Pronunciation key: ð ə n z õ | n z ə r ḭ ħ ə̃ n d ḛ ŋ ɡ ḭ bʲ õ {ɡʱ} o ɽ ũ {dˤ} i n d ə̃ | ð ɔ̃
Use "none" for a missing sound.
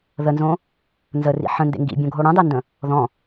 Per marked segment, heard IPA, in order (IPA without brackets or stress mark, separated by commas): ɡʱ, dˤ